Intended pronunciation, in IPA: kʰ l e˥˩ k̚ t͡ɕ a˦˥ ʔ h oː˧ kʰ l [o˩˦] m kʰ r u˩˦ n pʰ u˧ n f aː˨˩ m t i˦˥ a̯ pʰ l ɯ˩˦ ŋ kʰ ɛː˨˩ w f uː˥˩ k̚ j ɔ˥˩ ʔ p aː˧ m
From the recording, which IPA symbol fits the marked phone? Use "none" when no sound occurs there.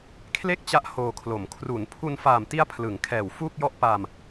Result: o˩˦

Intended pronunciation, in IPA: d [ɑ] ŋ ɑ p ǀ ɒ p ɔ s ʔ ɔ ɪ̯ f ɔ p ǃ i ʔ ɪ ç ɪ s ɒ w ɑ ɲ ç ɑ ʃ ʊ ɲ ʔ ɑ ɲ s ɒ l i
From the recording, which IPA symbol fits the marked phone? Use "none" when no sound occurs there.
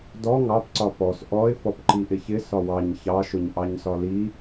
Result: ɔ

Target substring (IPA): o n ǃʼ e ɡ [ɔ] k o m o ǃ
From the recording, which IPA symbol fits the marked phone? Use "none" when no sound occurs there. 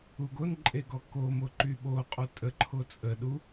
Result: ɔ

